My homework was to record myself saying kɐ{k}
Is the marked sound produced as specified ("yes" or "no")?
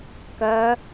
no